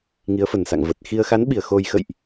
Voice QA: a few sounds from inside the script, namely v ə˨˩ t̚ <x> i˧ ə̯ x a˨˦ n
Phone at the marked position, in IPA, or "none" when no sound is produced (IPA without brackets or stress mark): x